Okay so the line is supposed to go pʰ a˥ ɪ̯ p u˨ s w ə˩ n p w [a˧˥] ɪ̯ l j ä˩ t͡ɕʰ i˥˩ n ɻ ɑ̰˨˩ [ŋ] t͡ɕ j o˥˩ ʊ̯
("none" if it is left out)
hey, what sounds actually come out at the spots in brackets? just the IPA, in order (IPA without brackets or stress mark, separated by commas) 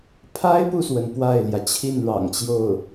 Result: a˥˩, ŋ